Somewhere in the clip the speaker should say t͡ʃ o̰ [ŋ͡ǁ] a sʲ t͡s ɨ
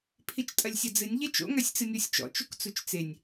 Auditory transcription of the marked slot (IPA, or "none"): ŋ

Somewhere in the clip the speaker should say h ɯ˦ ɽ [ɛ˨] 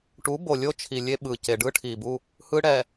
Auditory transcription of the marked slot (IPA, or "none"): ɛ˨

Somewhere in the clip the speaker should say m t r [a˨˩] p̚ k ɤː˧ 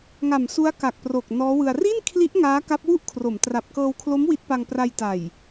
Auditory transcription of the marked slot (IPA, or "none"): a˨˩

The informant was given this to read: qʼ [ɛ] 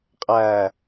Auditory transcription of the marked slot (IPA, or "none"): æ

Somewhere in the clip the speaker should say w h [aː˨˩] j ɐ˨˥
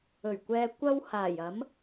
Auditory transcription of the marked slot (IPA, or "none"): aː˨˩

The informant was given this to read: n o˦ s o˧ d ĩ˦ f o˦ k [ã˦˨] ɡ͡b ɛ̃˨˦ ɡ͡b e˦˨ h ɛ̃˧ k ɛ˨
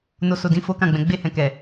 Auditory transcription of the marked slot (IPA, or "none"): ã˦˨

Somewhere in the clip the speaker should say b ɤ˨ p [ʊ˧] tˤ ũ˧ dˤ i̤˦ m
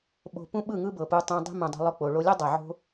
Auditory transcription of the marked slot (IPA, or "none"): u˧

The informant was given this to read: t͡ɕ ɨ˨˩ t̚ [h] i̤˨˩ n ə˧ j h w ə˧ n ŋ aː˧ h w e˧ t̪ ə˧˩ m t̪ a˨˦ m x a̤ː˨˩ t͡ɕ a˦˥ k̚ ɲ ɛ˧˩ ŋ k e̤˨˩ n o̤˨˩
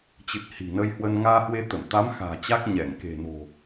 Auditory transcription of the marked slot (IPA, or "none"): h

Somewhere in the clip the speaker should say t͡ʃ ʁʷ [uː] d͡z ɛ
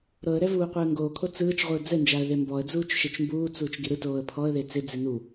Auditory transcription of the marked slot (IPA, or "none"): ɯː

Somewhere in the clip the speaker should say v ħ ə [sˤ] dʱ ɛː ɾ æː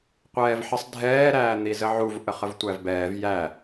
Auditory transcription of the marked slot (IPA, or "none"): sˤ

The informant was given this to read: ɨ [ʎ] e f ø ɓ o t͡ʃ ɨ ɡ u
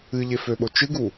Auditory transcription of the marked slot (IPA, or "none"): ʎ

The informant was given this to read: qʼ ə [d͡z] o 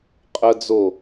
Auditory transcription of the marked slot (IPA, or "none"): d͡z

